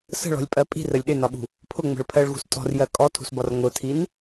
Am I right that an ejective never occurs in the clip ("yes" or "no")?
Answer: no